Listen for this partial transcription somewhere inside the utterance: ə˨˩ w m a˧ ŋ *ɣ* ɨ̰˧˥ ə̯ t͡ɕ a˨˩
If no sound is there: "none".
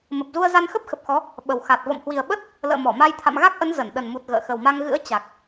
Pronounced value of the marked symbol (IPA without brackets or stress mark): ɣ